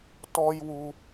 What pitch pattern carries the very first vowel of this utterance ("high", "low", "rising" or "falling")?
high